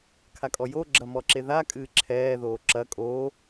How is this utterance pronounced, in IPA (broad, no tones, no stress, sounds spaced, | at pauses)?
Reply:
kʰ a kʼ ɔ j o ɡ͡ǁ ɐ m ɔ ǁ e ð a kʼ ɨː ǁʰ ɛː ð oː ǁ ɐ kʼ oː